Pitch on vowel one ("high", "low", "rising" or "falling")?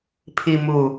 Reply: low